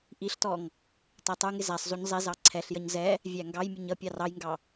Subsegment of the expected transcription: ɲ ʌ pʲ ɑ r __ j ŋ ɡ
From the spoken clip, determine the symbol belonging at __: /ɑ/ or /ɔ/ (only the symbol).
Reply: ɑ